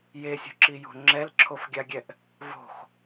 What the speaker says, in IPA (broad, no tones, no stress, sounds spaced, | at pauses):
j e sʲ o̤ ǁ i j o̤ ŋ͡ǁ ɛ l ǁʰ o f ɡʲ a ɡʲ ɛ ʔ | v o̤ x